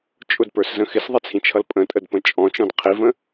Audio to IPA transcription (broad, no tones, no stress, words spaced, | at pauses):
t͡ʃʼʊdpə˞szə̃ xɪsðˤɛt͡sʰĩt͡ʃʰʌl pʼə̃tʼədpə̃ t͡ʃʼɔ̃t͡ʃɔ̃d qʰivə̃